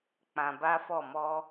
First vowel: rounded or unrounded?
unrounded